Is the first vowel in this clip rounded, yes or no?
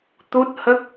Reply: yes